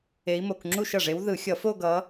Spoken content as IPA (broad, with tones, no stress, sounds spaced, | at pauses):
e˧˥ i̯ m o˧˩˧ k ŋ͡ǁ u˥˧ ʃ ʌ˨˩ ʐ e˧˥ w ð ɯ˧˩˧ xʲ ʌ˧˩˧ f o˥˧ ɡ ʌ˧˥